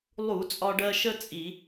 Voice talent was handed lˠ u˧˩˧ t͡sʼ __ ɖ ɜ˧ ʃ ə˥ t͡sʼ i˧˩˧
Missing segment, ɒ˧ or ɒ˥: ɒ˧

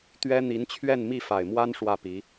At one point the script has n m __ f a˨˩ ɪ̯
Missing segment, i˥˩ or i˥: i˥˩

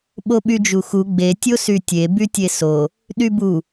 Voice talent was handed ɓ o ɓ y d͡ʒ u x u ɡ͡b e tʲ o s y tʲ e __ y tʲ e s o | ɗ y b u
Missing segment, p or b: b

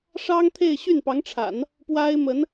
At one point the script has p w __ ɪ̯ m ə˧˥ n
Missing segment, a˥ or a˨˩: a˥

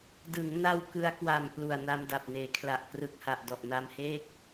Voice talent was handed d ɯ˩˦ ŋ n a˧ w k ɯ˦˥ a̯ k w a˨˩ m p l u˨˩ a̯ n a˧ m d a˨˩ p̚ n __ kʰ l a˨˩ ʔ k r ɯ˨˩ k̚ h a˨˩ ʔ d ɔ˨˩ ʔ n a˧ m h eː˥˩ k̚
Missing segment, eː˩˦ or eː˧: eː˩˦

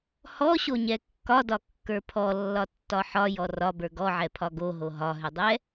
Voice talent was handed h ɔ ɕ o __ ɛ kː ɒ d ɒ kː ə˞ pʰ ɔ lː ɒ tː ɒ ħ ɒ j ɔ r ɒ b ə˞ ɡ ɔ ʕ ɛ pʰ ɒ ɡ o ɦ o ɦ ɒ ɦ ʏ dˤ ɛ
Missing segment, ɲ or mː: ɲ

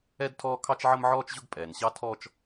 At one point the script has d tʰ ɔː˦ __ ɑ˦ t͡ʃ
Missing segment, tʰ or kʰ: kʰ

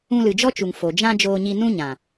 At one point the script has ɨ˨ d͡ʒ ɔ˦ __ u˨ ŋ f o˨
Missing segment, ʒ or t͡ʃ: t͡ʃ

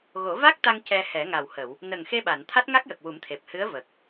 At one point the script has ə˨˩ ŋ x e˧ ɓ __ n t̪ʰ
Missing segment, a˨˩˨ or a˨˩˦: a˨˩˨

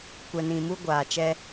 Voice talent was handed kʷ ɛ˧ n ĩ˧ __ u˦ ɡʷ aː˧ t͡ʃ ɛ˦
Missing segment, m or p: m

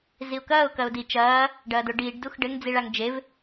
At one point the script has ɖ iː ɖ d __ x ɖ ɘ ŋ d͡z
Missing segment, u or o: u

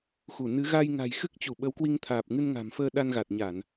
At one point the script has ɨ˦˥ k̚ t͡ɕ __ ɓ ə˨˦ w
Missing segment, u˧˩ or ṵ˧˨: u˧˩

